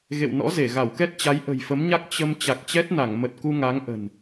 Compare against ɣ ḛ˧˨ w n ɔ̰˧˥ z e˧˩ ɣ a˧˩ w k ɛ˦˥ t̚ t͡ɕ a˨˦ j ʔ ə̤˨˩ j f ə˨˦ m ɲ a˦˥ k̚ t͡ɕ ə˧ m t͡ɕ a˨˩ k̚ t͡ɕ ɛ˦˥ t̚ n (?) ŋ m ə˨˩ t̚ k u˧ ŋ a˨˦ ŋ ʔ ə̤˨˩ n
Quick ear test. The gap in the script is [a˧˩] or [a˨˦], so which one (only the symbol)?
a˧˩